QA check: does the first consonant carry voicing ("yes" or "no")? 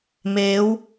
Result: yes